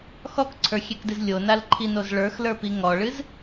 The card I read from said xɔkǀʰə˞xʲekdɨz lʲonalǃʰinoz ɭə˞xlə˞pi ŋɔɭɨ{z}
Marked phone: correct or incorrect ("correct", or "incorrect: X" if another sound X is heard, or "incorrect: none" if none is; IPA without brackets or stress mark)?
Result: correct